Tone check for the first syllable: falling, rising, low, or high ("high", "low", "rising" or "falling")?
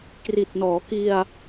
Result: low